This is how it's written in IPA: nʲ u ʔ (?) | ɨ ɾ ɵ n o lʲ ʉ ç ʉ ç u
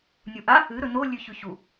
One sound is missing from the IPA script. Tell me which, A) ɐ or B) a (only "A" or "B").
B